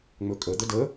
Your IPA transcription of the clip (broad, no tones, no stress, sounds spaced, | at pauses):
ŋ͡m ɵ kʼ ə d̪ ə d ə